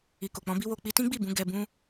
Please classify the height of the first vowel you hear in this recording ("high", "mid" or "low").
high